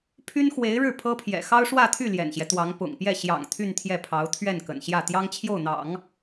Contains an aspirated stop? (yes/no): yes